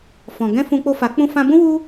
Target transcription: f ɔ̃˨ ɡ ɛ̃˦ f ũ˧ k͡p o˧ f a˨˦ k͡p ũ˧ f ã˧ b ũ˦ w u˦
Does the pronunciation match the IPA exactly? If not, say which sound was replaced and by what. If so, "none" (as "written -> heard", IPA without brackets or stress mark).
none